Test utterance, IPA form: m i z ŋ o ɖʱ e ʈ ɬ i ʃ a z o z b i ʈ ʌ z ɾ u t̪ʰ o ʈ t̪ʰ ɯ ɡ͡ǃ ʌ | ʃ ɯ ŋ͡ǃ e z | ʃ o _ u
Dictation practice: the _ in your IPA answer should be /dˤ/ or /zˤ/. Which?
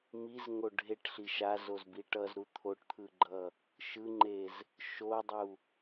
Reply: dˤ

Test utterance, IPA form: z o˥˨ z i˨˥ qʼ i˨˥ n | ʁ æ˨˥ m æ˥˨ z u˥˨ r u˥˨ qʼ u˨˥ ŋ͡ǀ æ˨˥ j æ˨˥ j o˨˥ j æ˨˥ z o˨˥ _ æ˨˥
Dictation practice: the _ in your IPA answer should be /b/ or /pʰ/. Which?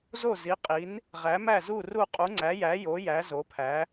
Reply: pʰ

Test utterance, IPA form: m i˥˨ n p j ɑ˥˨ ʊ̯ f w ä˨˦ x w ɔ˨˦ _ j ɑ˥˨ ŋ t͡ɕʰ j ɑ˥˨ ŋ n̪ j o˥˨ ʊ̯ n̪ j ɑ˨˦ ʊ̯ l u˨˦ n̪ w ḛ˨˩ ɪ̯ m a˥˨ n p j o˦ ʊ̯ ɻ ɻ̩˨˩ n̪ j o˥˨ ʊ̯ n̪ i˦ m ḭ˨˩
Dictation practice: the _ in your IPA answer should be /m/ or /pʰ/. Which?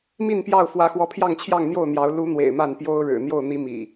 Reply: pʰ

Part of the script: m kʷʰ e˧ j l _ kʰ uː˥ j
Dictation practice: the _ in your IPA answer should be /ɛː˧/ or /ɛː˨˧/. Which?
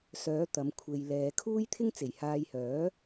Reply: ɛː˨˧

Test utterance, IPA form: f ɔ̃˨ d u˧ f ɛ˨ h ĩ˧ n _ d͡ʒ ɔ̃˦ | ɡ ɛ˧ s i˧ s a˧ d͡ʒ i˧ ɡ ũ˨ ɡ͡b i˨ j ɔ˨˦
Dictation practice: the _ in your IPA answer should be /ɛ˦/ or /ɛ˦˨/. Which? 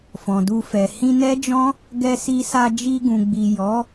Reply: ɛ˦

